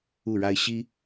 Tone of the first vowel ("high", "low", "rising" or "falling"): falling